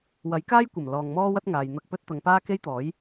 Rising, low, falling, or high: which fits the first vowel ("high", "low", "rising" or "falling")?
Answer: rising